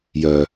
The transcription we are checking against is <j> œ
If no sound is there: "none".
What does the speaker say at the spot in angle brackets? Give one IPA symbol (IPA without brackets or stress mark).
j